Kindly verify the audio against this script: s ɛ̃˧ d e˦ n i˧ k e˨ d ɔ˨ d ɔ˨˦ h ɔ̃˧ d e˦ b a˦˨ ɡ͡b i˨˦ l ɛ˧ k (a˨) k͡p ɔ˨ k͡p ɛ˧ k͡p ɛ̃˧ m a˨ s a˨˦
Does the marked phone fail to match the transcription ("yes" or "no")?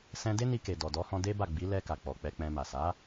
no